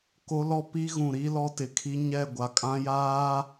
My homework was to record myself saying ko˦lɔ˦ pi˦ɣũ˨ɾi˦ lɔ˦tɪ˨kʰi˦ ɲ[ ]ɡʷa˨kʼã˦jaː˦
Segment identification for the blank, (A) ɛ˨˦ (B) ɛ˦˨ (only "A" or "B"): B